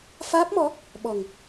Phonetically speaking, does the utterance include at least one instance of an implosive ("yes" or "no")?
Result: yes